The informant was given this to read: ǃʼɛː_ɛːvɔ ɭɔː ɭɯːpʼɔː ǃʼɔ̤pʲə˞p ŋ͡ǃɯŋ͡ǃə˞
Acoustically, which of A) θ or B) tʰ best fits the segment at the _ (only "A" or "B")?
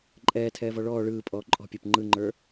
B